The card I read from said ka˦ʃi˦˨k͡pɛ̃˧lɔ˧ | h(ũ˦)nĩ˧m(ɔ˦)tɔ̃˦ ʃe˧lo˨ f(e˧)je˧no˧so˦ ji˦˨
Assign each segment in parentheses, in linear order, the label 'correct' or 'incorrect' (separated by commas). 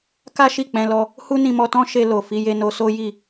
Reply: incorrect, incorrect, incorrect